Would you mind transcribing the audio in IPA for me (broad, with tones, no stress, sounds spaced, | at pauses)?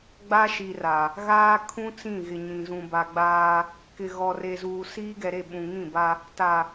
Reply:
ɡ͡b a˦ ʃ i˨ r a˨ | ɣ aː˦ kʰ ũ˦ t͡s ĩ˦˨ ɣ ɪ˨ ɲ ĩ˨ z ũ˨ b a˨ ɡ͡b aː˦ | k ɪ˨ ɣ ɔ˨ r e˨ z uː˨ s iː˦ ɡ ɛ˨ ɾ e˦˨ ɓ ũ˨ ŋ ĩ˦˨ b a˦ | t a˨